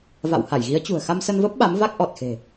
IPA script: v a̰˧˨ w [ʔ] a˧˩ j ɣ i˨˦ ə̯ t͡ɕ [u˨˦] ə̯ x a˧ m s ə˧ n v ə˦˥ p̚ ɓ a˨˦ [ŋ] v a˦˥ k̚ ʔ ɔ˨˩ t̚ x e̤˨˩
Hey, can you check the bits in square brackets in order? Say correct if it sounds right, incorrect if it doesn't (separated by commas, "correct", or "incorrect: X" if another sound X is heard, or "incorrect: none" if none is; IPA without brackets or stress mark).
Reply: incorrect: h, incorrect: ṳ˨˩, incorrect: m